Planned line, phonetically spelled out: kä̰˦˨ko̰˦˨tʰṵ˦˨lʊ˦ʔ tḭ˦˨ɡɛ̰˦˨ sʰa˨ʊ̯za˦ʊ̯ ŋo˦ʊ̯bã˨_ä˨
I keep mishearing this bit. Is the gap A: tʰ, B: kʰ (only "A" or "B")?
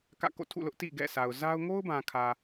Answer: B